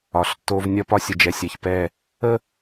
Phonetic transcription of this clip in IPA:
ɒ˨ ɬ tː o˦ v nʲ ɒ˦ p ɒ˦ sʲ ə˨ d͡ʒ ɛ˨ sʲ ɛ˨ ç p ɛ˦˨ | ə˦

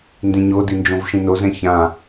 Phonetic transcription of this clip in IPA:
n d ĩ ɲ o d i n d͡ʒ õ v ʃ ĩ n o z ɛ̃ ç ã

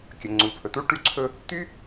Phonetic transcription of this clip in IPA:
kʲ ə˩ ŋ͡ǀ u˩ pʰ ɵ˩ t u˥ ʈ y˥ ǀʰ ɵ˥ | t̪ y˥

